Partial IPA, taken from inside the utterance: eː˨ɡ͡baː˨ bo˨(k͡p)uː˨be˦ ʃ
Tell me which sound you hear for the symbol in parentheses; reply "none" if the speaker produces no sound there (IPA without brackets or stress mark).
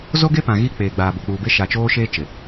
k͡p